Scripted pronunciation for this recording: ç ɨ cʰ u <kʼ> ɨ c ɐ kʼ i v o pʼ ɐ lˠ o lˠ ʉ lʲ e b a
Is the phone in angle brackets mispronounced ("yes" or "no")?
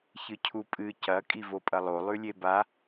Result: yes